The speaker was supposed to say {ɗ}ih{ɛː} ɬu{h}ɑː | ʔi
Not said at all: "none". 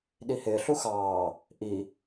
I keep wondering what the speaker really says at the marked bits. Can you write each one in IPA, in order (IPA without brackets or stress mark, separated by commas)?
ɗ, ɪː, x